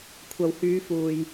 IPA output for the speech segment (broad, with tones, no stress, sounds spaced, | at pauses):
kʷʰ ɐ˨ w h yː˨˧ f uː˨ j